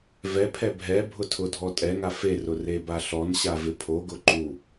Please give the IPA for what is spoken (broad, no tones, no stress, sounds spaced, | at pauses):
v ɛ pʰ ɛ bʱ ɛ bʱ ʊ tʰ ʊ dʱ ɔ tʼ ɛ ŋ a f e r ʊ r e b a ɬ ɔ n ɕ a v ɪ pʰ o ɡ ʊ ǃ u